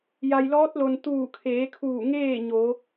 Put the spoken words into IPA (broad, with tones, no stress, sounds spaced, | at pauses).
j a˩ j l ɔː˧˥ t̚ l o˩ n t̪ uː˧˩ kʰ eː˩˧ kʰ uː˧˩ ŋ eː˥˨ ɲ o˩˧